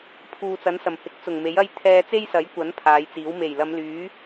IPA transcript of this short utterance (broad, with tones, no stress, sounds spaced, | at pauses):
pʰ uː˨ t͡s ɐ˨˥ n s ɐ˨˩ m h ɪ˨˥ k̚ t͡s ʊ˨˩ ŋ m e˨˥ j ɐ˥ j t̪ʰ ɛː˧ t͡s e˥ j s ɐ˨˥ j kʷ ɐ˨˥ n pʰ aː˨˧ j t͡s iː˨˥ w m e˨˩ j l ɐ˨˧ m l yː˨˥